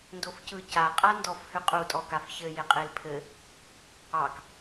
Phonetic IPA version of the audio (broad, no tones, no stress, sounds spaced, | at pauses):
n d o f c ɯ c a qʼ a n d ɔ f h ʏ qʼ u tʼ ɔ k a f ç ɘ j e qʼ e l pʰ ɘ | ɑ k